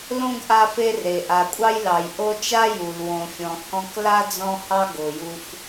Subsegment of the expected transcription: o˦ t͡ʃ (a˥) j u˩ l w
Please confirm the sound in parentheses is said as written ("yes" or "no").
yes